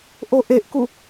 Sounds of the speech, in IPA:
ʔ o ʔ e ʔ k u

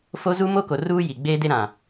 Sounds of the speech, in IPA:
f o˦ z u˦ m o˦ k o˨ r uː˦ j i˨ ɡ͡b eː˦ d e˦ ɾ ã˨

